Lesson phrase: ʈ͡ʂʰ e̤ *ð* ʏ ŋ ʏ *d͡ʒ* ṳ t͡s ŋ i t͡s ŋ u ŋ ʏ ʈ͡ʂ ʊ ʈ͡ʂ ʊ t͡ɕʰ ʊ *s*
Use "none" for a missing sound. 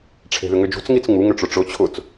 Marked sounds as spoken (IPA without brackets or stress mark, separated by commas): ð, d͡ʒ, t͡s